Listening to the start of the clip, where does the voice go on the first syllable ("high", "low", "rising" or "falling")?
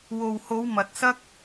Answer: low